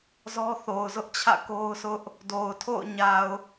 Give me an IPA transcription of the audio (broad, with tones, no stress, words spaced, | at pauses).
zɔ˦θo˨ʊ̯zʊ˦ʔt͡ɕʰä̰˦˨ ko˦ʊ̯sʰʊ˦ʔ | do˨ʊ̯tʰo̰˦˨ʊ̯ɲa˨ʊ̯